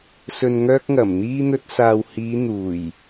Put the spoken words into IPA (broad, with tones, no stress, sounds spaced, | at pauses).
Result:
s ɵ˨ n ŋ œː˧ k̚ ŋ ɐ˨˩ m n̪ iː˧ n̪ ɵ˧ t̚ s aː˨ w h iː˨˧ n̪ uː˨˩ j